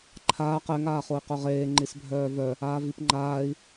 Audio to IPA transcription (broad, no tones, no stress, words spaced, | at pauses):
ǃʰaːq ɛŋ aːχoi̯qœʁeː ŋ͡ǃisbʱœːvœ | aːvipŋ͡ǃaːi̯